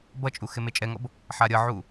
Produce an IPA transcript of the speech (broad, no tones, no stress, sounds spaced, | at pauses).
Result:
b ʌ t͡ʃʼ u x e m e t͡ʃʼ ɛ ŋ ʌ b | ħ a ɾʲ ʌ ʕ u